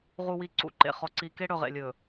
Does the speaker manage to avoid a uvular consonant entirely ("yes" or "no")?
no